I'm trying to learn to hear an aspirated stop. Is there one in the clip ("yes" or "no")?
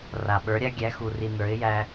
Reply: no